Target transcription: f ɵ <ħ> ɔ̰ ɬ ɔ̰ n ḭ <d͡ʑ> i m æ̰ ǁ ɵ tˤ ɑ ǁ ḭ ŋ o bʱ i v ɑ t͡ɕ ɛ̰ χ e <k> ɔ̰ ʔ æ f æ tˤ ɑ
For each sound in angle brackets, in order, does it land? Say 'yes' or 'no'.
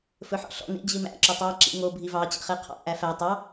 yes, yes, no

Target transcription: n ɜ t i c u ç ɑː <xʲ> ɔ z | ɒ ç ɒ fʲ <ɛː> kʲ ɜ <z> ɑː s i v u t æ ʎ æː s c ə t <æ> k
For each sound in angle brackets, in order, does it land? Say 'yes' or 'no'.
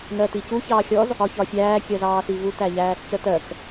yes, no, yes, no

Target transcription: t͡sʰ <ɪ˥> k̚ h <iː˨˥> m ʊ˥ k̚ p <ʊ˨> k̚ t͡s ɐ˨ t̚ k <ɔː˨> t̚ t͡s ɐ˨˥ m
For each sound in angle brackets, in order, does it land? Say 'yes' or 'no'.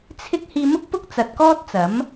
yes, no, no, no

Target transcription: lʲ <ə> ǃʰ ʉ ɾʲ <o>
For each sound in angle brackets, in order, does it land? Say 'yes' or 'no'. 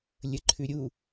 yes, no

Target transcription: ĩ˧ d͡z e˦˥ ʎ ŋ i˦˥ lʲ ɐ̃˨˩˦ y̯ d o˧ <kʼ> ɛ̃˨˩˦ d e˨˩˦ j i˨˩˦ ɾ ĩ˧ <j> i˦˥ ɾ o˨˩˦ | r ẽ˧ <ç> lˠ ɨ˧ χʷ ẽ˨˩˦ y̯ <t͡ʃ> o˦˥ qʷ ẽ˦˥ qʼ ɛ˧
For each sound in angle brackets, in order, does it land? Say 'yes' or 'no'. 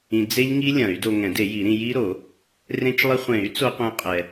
no, yes, no, no

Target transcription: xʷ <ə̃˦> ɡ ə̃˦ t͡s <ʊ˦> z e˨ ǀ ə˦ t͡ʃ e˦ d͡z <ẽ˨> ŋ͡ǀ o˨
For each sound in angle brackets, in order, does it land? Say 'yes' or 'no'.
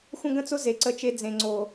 yes, yes, yes

